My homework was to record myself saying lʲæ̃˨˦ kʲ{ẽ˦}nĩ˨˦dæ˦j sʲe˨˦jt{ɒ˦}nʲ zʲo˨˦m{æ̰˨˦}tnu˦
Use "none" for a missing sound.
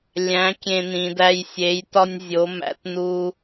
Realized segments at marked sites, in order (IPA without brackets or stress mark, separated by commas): ẽ˦, ɒ˦, æ̰˨˦